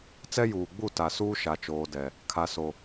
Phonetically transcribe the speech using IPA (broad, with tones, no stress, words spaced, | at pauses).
t͡sɛ˦juː˨ɡ͡bu˦˨ ta˨suː˦ʃa˨ t͡ʃoː˨dɛ˨ | kʰa˨so˨